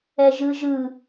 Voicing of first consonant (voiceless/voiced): voiced